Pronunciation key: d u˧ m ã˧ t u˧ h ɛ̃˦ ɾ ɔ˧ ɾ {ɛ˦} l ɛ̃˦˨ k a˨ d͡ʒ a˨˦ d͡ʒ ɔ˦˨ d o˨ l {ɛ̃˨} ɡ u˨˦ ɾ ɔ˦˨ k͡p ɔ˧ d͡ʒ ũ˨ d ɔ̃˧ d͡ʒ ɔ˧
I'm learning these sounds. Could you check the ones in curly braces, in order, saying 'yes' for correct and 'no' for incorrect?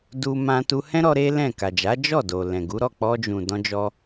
no, yes

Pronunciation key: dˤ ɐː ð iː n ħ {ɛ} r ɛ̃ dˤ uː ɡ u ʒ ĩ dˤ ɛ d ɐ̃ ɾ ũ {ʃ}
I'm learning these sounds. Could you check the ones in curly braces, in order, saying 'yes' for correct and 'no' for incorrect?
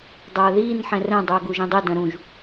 no, no

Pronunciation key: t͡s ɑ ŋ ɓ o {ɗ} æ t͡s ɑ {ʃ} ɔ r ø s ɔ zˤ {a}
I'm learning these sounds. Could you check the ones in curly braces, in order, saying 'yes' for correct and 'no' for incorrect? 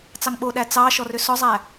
yes, yes, no

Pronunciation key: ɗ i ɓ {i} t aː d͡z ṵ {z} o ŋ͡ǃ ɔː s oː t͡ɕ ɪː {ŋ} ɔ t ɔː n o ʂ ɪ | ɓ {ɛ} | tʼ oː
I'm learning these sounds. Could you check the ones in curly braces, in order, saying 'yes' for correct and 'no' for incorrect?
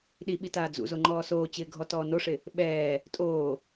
yes, yes, no, no

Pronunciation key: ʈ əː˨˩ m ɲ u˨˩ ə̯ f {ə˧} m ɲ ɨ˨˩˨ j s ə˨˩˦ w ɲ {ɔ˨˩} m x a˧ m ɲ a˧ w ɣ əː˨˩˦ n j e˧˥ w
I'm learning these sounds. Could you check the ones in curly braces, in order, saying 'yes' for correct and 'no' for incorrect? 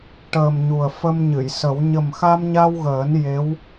yes, no

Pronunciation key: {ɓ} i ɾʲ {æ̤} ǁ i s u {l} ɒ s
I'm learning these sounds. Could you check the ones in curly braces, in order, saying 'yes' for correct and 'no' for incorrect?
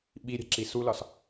yes, yes, yes

